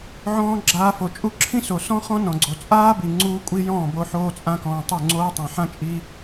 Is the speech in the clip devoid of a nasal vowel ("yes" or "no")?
no